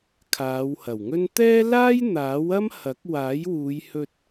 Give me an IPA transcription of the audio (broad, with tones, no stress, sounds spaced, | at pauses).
kʰ aː˨˧ w h ɐ˨˩ w ŋ ɵ˥ n t̪ ɛː˥ l aː˥ j n̪ aː˨˥ w ɐ˥ m h ɐ˨˥ k̚ w aː˨˥ j w uː˨˧ j h ɵ˧ t̚